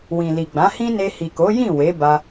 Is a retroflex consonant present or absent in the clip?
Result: absent